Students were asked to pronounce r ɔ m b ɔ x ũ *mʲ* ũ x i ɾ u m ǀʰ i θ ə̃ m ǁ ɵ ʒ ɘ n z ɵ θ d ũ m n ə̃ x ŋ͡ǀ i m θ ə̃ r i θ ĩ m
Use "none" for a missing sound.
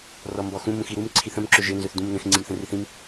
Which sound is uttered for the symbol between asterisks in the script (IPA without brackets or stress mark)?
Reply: m